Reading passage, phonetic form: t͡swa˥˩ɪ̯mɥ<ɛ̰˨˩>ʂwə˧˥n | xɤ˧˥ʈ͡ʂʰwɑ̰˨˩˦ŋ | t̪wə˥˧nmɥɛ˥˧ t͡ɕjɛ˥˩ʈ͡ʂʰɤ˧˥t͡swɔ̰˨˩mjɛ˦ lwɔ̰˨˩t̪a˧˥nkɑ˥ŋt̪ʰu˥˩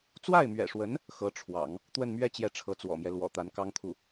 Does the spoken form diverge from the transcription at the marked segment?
no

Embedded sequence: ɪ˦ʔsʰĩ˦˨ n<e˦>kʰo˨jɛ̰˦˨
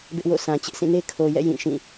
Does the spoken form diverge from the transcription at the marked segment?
no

